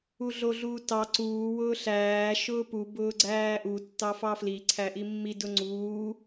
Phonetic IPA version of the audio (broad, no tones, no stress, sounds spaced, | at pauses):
u ɮ o ɮ uː t ɑ ǀ uː w ʊː ɬ æː ʃ ʊː p u b ʊː ɡ͡ǀ æː ʔ u tː ɑ f ɑ f l i ǀʰ æ ʔ i mː i d ʊ ŋ͡ǀ uː